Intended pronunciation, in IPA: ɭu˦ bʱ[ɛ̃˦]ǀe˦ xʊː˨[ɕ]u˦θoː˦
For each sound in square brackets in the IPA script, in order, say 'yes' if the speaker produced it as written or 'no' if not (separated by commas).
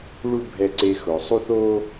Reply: no, no